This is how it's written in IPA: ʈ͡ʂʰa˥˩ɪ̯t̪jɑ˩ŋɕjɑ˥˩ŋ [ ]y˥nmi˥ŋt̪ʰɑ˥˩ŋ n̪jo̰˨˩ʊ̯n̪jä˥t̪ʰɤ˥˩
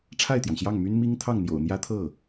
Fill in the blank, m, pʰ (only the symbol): m